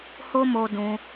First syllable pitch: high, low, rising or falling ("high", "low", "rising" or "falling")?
high